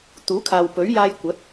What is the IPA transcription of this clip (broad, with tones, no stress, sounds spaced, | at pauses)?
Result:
t̪ uː˨˥ kʰ aː˨ w p ɵ˨˥ ɥ j aː˧ j kʷ ɐ˨˥ t̚